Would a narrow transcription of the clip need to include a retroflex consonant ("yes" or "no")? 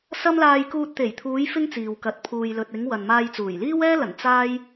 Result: no